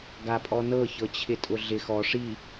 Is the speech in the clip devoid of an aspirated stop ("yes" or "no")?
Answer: no